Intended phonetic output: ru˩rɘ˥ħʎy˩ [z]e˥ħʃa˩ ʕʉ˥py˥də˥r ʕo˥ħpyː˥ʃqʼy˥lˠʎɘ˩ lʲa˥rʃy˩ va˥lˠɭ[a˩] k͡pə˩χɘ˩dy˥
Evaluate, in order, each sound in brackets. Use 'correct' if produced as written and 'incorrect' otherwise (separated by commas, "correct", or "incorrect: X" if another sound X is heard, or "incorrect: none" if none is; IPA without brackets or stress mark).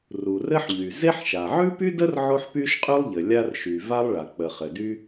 correct, correct